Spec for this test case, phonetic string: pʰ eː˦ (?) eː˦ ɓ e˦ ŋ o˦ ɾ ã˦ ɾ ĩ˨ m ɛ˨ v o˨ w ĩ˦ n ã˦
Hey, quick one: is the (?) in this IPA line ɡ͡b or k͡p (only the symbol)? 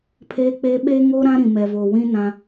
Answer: k͡p